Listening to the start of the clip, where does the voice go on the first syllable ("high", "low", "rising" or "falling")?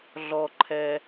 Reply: low